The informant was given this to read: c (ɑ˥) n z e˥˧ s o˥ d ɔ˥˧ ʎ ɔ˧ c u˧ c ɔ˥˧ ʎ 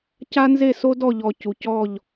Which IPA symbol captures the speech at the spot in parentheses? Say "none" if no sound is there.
a˥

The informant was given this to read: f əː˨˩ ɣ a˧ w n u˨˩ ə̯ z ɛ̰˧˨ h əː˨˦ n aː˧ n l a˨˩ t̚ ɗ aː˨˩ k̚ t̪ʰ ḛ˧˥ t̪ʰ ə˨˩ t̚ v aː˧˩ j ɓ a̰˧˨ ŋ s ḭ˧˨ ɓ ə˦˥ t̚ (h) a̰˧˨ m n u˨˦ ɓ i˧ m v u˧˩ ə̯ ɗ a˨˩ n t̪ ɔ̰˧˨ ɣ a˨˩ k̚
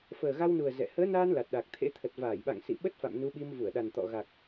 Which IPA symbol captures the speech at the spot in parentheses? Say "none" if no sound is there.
f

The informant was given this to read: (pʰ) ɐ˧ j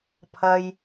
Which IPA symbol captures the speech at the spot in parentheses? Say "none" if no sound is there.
pʰ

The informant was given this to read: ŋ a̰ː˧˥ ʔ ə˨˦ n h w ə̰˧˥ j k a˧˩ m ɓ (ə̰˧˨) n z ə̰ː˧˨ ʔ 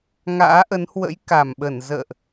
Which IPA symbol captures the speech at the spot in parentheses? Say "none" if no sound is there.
ə˧˩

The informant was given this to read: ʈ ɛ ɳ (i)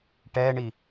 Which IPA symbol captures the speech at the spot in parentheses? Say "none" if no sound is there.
i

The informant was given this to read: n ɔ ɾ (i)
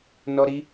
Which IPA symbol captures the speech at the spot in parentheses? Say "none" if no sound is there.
i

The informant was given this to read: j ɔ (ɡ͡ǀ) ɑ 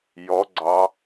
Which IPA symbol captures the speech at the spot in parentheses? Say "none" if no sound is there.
ɡ͡ǀ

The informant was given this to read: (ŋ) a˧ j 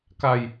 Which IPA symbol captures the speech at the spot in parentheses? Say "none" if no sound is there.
k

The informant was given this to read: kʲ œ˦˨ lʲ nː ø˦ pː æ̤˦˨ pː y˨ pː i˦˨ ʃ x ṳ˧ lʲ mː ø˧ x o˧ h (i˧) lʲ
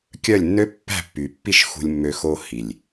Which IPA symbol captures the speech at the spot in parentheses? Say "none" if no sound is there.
i˨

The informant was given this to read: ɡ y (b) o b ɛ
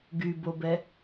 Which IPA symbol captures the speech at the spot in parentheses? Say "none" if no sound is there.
b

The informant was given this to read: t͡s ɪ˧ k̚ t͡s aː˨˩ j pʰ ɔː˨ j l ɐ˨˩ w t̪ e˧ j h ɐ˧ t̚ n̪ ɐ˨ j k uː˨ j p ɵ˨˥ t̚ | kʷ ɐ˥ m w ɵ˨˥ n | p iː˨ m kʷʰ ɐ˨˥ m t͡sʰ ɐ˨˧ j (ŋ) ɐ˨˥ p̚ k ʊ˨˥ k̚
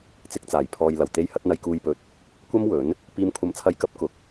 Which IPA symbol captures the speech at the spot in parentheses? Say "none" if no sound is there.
k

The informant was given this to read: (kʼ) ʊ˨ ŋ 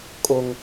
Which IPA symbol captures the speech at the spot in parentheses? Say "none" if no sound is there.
kʼ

